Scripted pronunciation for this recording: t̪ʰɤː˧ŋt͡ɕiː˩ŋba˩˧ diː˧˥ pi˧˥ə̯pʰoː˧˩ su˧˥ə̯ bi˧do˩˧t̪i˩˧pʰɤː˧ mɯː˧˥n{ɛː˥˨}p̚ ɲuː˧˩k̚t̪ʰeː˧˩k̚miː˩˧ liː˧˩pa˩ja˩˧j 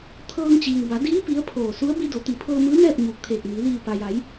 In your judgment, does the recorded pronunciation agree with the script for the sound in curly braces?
yes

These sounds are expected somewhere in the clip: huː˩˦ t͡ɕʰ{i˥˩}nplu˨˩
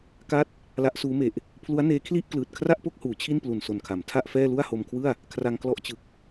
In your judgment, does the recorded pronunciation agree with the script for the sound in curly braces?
yes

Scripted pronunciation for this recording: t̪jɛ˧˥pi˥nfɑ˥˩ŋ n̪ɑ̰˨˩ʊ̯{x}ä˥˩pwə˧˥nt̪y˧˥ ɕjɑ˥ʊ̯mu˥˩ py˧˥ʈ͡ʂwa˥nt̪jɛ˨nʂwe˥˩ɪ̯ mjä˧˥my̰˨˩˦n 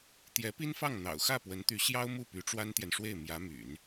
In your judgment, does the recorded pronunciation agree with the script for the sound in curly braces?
yes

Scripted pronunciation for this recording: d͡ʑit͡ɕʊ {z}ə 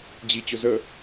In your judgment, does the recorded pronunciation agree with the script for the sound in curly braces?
yes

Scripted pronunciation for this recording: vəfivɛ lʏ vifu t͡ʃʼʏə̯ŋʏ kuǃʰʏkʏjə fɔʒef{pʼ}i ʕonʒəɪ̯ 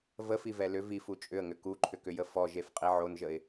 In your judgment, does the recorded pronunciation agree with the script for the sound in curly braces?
no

